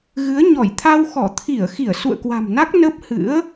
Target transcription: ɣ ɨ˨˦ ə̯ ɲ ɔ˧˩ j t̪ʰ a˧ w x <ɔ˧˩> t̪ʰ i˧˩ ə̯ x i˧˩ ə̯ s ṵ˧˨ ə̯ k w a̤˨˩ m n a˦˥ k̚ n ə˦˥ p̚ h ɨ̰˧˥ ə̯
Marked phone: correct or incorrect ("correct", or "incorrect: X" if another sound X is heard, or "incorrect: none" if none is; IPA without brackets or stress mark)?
correct